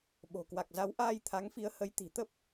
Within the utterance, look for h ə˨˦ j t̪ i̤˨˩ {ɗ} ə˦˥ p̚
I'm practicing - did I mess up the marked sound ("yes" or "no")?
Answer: yes